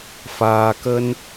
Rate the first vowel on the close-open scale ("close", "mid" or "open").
open